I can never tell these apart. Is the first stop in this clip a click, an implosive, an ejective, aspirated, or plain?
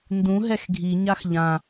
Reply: plain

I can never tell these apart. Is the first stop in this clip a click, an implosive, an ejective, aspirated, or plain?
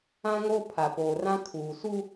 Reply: aspirated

